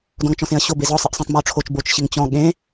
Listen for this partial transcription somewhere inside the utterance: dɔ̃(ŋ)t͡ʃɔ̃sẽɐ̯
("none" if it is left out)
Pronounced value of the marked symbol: ŋ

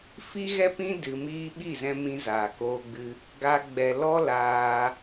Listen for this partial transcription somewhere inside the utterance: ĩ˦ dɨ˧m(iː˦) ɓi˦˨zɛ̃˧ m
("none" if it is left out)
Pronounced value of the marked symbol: iː˦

